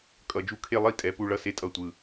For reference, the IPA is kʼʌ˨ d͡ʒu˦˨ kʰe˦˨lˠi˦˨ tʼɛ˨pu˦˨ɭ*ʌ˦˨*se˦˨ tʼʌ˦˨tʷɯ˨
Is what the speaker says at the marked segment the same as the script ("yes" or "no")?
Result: yes